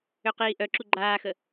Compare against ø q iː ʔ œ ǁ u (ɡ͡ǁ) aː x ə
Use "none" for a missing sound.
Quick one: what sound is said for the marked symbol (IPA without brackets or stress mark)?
ɡ͡ǃ